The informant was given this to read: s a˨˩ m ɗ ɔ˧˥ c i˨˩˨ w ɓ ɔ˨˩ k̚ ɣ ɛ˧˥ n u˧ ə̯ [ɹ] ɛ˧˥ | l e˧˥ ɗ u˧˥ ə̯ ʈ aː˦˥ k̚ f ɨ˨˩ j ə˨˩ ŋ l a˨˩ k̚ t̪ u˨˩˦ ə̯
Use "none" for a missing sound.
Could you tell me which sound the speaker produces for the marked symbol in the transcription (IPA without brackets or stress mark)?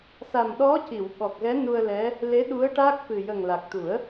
l